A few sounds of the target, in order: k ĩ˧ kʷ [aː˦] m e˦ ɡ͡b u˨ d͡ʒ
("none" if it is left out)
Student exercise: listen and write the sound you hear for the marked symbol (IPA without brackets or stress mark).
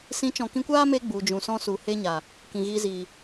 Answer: aː˦